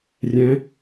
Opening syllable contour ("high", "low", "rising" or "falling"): rising